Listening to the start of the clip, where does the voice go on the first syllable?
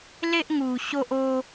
high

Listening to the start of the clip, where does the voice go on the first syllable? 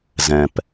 low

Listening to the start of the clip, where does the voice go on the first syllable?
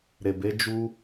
low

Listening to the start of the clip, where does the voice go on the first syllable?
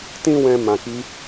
high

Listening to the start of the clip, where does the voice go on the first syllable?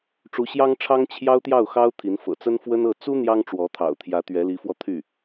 rising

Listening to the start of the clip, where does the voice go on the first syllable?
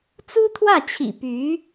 high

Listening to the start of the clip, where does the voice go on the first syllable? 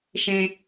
low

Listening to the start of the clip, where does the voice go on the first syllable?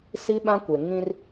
high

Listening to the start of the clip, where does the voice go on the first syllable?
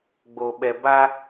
low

